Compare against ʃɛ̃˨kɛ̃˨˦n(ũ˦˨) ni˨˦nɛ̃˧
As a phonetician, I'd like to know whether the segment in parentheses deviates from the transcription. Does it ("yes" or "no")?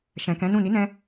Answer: no